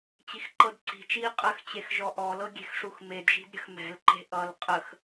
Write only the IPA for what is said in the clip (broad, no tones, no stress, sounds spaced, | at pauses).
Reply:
t͡ɕ i x ǃ ɤ d ǀ i̤ t͡ʃ iː qʼ ə x t͡ɕ e x ʒ ɔ ʔ ɔ l ɤ ɡʲ e̤ x ʂ u x m e d ʒ i̤ d ɾʲ ə̤ x m ɛ̤ l ǃ e̤ ʔ ʌ l qʼ ə x